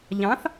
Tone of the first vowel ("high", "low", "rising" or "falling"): rising